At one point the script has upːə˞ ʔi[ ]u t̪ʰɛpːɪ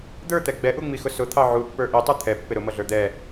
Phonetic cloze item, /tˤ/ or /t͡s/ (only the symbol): tˤ